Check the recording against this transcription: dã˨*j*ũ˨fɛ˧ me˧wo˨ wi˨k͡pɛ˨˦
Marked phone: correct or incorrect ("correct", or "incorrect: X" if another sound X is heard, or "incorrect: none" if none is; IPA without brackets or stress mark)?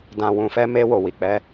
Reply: incorrect: w